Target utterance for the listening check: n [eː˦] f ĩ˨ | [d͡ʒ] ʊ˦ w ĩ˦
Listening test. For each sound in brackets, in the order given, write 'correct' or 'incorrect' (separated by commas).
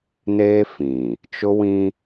correct, incorrect